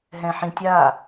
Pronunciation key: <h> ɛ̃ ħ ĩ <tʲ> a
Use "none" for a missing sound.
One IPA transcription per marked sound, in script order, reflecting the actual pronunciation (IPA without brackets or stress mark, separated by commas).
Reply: ɦ, tʲ